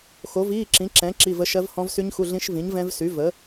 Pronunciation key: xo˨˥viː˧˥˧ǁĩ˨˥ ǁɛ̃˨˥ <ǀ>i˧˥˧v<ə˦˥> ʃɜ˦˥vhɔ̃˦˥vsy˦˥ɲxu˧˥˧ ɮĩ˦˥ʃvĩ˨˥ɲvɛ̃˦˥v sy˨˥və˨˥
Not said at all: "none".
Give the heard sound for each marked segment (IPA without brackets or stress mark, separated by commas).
ǁ, ə˦˥